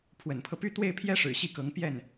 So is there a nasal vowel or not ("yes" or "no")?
no